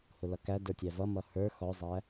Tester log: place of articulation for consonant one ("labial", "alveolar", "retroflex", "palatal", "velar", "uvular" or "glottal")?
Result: glottal